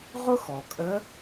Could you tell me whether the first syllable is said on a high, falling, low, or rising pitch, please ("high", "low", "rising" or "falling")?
high